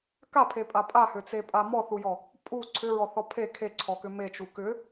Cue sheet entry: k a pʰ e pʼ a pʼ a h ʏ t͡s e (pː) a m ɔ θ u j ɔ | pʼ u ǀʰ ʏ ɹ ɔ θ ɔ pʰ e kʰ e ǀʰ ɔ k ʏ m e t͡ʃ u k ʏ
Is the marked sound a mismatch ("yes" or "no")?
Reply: yes